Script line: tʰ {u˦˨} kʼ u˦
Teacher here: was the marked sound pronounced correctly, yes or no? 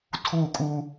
yes